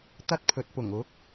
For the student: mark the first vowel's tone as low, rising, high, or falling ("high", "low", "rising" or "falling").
high